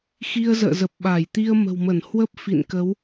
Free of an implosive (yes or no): no